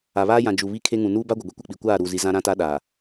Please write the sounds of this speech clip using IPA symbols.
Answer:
a˨ β aː˦ j ã˨ d͡ʒ u˨ β i˦˨ kʰ e˦ ŋ ũ˨ n uː˦ b a˦ ɡʷ ɪ˨ ɡʷ i˦ kʷ ɪ˦˨ k͡p i˨ kʷ aː˦˨ ɾ uː˨ z i˨ z ã˦ ɾ ã˦ t a˦ ɗ aː˨

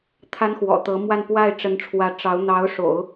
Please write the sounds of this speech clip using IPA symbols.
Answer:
t̪ʰ a˥ n x w ɔ̰˨˩ t̪ ɤ˧˥ m w a˥˧ n p w a˥˩ ɪ̯ ʈ͡ʂ ə˧˥ n ʈ͡ʂʰ w ä˧˥ ʈ͡ʂ ɑ˧˥ ʊ̯ n̪ ɑ˧˥ ʊ̯ ʂ o̰˨˩˦ ʊ̯

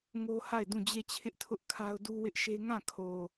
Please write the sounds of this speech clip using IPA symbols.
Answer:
ŋ o˦ h a˦˨ ɪ̯ d ũ˦˨ d͡ʑ e˦˨ t͡ɕʰ ɪ˦ ʔ tʰ ʊ˦ ʔ kʰ a˦ ʊ̯ d u˦ w ɪ˦ ʔ ʃ e˦ ŋ ã˦˨ kʰ o˨

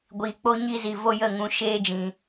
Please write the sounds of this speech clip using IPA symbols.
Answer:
ɡʷ iː˨ k͡p o˦ ɲ i˦ z i˨ v o˦ j ə˦˨ ŋ ũ˧ ʃ eː˦ d͡ʒ ĩ˨

